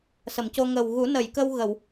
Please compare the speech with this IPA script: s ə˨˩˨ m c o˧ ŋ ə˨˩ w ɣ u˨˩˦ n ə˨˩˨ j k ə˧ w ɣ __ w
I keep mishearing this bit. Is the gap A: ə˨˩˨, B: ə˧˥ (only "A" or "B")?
A